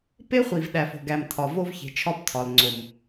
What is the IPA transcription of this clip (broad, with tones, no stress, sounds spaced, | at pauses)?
p e˦ χʷ i˨ v ɗ æ˨ f o̤˨ ɡ æ˨ m tʰ ɒ˨ v o˦ v ç e̤˨ t͡ʃʰ ɒ˦ p tʰ ɒ˨ l ŋ͡ǀ o˨ m